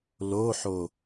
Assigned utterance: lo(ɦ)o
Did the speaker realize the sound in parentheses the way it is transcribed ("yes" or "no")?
no